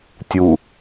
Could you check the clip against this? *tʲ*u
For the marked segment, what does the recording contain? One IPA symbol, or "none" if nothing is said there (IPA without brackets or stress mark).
tʲ